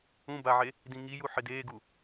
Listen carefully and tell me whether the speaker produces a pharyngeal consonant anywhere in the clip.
yes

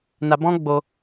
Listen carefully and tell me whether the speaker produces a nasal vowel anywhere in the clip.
yes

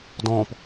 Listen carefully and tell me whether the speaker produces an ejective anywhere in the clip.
no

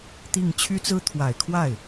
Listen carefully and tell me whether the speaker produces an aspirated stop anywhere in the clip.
yes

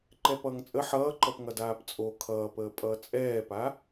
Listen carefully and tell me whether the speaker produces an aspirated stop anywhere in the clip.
yes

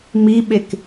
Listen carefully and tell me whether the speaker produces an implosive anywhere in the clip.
yes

